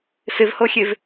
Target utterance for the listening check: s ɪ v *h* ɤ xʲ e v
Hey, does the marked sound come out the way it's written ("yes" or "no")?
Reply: yes